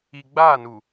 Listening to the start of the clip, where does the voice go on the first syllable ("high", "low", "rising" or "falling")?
low